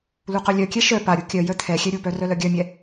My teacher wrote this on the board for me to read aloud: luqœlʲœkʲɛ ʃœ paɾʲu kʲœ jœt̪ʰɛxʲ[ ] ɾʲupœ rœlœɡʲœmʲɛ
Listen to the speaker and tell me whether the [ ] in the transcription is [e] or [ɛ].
ɛ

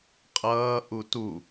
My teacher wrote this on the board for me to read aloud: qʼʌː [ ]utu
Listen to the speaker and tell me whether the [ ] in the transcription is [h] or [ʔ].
ʔ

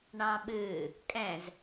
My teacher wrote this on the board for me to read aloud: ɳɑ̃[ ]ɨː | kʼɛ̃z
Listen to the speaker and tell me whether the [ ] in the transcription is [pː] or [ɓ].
ɓ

